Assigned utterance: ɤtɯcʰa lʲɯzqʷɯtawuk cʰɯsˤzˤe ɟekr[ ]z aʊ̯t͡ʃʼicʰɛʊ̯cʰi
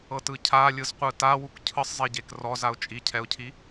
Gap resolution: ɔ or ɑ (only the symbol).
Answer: ɔ